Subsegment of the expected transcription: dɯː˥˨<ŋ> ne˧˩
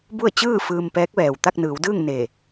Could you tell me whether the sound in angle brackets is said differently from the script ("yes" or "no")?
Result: no